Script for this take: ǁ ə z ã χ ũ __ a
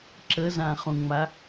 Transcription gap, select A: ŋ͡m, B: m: A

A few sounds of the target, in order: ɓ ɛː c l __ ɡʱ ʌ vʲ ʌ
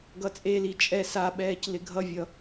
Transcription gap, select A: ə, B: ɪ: B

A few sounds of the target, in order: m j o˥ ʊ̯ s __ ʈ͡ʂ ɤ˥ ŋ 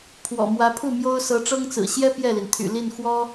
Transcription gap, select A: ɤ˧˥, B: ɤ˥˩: A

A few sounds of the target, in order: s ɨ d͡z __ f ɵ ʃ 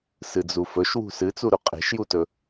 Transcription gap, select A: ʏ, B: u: B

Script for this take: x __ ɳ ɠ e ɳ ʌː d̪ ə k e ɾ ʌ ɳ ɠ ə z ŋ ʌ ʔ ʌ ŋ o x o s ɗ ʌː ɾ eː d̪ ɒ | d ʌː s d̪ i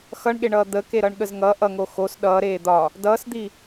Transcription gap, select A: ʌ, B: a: A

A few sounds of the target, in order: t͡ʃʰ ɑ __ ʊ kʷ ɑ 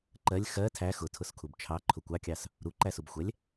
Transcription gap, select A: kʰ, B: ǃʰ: B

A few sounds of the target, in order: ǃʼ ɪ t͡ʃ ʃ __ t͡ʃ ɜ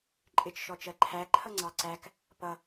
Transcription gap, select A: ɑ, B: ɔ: B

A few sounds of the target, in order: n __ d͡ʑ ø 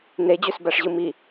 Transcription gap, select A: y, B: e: B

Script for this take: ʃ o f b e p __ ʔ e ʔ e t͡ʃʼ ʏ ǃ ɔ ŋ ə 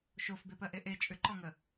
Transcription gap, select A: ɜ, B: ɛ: A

